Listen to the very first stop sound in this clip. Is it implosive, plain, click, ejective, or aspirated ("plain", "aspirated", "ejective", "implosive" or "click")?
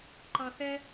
click